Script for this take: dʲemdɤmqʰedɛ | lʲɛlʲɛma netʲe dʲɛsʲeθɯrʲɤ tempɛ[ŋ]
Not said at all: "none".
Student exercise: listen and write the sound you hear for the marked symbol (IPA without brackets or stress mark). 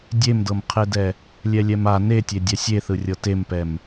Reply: m